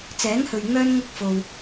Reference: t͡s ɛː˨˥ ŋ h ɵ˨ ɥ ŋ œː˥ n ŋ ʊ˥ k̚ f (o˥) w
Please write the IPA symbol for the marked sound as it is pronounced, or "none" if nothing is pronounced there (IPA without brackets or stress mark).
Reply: o˧